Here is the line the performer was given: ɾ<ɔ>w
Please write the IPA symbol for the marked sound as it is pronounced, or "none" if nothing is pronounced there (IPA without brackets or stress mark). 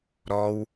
ɔ